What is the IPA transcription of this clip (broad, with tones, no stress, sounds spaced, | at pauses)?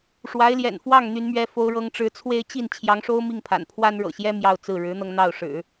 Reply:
ʂ w a˧˥ ɪ̯ l j ɛ̰˨˩ n f w ɑ˥˩ ŋ n̪ y˧˥ n m ɥ ɛ˧˥ f o˧˥ ʊ̯ ɻ ɤ˧˥ ŋ ʈ͡ʂ ɻ̩˧˥ t͡sʰ w e˥ ɪ̯ t͡ɕ i˥˩ n t͡ɕʰ j ɑ˧˥ ŋ ʂ o˥ ʊ̯ m i˥˩ ŋ pʰ a̰˨˩ n pʰ w a˥ n ɻ ɤ̰˨˩ ɕ j ɛ˥ m j ɑ˥˧ ʊ̯ t͡s ɹ̩˥˩ ɻ ɻ̩˧˥ n̪ ɤ˧ ŋ n̪ ɑ˥˩ ʊ̯ ʂ ɻ̩˨˩˦